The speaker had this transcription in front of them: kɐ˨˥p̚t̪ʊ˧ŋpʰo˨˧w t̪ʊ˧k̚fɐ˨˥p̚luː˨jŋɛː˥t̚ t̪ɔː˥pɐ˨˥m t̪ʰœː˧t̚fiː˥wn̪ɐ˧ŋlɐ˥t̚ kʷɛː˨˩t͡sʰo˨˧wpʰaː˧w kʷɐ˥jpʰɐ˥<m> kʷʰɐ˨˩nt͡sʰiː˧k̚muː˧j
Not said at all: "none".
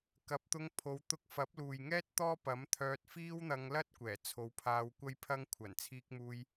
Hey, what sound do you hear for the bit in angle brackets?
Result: ŋ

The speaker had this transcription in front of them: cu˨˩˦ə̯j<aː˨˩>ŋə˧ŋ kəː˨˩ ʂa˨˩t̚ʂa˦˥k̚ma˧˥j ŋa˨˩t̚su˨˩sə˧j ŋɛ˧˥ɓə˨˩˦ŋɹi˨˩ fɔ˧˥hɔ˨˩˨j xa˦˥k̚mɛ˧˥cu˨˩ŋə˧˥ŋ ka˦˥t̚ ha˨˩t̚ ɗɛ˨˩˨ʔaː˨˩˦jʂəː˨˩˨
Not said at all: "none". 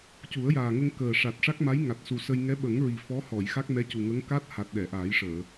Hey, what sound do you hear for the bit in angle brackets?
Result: aː˨˩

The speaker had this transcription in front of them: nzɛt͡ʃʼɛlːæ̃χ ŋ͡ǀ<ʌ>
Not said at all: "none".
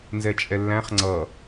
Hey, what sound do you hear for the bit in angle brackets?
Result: ʌ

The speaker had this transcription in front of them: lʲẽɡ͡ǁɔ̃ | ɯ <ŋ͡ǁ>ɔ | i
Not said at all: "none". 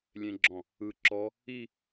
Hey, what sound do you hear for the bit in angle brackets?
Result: ǁ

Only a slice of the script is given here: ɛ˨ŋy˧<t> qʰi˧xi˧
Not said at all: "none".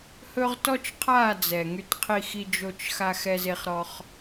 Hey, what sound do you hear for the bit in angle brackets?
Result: t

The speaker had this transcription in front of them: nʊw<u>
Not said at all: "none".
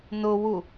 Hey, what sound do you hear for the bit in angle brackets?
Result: u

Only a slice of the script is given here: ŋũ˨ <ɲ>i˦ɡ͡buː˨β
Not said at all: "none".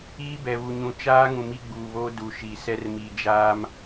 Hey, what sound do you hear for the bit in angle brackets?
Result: m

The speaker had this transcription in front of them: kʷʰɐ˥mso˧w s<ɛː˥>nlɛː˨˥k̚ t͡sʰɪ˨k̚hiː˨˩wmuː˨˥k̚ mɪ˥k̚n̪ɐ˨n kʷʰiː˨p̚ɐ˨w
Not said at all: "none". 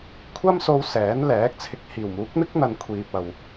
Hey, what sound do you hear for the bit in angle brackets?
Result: ɛː˨˥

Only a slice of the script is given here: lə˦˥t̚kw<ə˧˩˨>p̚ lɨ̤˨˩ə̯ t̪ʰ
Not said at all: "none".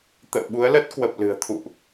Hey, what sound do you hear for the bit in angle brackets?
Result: ə˨˩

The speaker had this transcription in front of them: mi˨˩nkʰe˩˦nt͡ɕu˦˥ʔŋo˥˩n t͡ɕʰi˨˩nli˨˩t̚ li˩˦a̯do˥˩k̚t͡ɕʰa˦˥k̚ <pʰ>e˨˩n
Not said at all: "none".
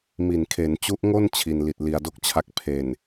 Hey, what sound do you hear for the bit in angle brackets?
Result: pʰ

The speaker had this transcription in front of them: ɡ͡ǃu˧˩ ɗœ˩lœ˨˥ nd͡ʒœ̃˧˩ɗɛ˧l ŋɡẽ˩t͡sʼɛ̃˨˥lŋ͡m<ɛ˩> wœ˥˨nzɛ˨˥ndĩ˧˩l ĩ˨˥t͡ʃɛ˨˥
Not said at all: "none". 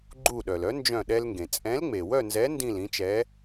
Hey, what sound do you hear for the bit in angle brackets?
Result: e˩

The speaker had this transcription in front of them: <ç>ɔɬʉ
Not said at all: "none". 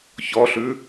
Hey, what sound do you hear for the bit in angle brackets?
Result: ç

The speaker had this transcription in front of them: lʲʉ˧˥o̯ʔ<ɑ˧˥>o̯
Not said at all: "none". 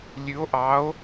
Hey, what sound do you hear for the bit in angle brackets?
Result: ɑ˧˥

